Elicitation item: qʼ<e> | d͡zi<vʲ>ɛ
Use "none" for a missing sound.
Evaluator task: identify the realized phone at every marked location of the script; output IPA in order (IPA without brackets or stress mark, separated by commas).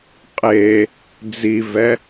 e, v